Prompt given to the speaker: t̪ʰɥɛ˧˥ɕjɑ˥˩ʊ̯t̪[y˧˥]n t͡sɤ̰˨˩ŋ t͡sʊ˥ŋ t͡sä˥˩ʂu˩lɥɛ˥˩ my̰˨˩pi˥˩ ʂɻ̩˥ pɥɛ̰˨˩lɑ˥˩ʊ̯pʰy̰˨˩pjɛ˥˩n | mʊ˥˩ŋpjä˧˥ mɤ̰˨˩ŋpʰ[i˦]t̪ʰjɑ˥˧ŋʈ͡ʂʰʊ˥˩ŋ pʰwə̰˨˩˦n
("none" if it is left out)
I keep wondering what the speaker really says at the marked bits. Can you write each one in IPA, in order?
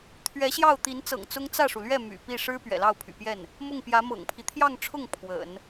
i˧˥, i˦

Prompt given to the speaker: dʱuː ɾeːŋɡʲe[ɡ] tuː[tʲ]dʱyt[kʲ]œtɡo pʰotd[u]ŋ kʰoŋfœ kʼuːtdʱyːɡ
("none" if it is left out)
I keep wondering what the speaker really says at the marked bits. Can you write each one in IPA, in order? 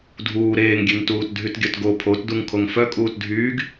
ŋ, t, ɡʲ, u

